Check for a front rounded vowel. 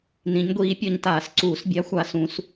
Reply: absent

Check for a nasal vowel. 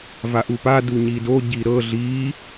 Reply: absent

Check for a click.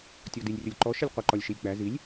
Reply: present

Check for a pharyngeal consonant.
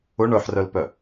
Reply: present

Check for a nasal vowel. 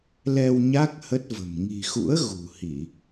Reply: absent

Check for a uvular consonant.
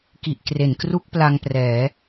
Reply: absent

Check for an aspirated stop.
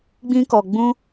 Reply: absent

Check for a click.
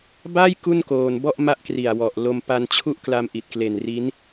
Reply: absent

